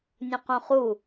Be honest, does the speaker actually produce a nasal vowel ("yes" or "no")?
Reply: yes